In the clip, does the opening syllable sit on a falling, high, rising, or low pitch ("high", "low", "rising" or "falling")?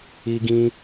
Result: high